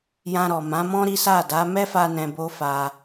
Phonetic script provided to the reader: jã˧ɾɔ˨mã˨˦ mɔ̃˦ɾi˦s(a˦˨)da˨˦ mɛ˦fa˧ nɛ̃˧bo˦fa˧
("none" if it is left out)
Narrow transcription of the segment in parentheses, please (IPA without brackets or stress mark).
a˦˨